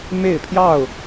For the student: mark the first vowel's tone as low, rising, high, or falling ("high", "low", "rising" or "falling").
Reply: falling